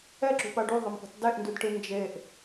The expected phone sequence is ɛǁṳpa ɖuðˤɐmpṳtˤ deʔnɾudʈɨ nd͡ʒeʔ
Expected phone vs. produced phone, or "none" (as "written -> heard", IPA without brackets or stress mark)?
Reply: ɾ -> d